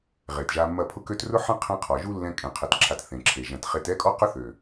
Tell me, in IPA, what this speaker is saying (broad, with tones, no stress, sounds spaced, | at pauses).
ʁ e˨ t ʒ a˧ mː ɐ˦˨ pʰ ʊ˦ k ø˦ t r ʊ˦ ħ ɐ̃˦ qʰ ɛ̃˦ qʰ ɔ˨ ʒ u˦ lː ɛ̃˧ kʼ ẽ˨˦ qʰ ɛ˧ t ǁʰ a˧ t θ ẽ˨ ǁʰ e˨ ʒ ɐ̃˨ t χ e˧ t ɛ˦ kʼ ɔ˦ q ʊ˦ θ ø˨